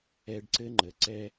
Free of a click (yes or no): no